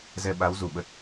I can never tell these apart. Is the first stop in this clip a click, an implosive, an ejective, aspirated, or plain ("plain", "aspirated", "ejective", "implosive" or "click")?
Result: implosive